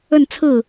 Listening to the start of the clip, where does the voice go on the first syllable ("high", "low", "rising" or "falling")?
falling